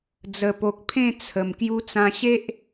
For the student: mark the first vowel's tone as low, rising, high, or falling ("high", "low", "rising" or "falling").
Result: low